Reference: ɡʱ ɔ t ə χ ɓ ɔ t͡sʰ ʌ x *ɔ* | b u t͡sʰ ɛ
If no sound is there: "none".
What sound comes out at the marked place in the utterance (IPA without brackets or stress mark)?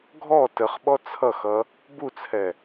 ʌ